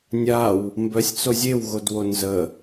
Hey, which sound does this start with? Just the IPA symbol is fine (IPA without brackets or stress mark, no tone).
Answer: nʲ